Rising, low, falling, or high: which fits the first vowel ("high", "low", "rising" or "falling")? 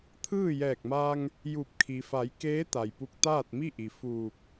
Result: falling